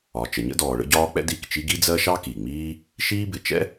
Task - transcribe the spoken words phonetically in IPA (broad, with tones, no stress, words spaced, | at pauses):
ɒ˩t͡ʃə˩ɲə̰˥dɔː˩ ɭə̰˥ɟɒː˥k͡pɛ̰˥d i˩kt͡ʃi˥ ɡi˥d͡zɜ˥ ʃɑ˥ki˩ŋ͡miː˥ | ʃiː˥bɪ˩ t͡ʃɛ̰˥